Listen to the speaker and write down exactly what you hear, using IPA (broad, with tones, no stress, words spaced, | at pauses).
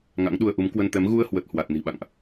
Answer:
ŋa̰˧˥ŋɗu˧ə̯ʔu˨˦m kwə˧nt̪ɛ˨˦m ɣu˧ə̯hwə˨˩t̚ hwa˨˩t̚ ni̤˨˩ɓa̰˧˨ŋʔ